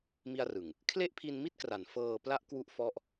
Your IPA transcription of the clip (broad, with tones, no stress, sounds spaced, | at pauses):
m i˧ a̯ r ɯ˨˩ ŋ | kʰ l e˥˩ ʔ pʰ i˧ n m i˥˩ t̚ k r a˩˦ n f ɤː˧ p l a˥˩ ʔ k w u˦˥ ʔ f ɔ˥˩ ʔ